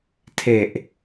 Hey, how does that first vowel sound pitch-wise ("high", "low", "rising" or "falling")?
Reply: low